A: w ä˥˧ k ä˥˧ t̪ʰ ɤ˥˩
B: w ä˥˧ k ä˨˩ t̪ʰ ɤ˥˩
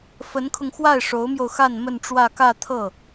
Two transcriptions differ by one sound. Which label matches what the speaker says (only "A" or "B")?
A